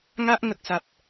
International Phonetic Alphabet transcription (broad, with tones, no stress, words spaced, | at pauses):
ŋa˦ʔ ŋə˦k̚ sa˦p̚